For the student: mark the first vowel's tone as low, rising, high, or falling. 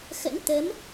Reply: rising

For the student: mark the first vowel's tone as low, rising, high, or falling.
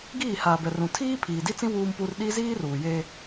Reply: falling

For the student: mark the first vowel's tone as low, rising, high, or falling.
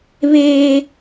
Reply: high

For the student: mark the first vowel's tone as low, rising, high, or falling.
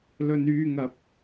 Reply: low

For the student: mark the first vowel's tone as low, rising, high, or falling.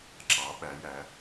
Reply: rising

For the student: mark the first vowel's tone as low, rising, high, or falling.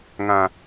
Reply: low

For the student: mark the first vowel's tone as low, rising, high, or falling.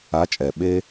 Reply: rising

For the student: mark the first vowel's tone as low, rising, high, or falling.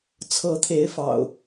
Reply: rising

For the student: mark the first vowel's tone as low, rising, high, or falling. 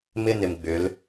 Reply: high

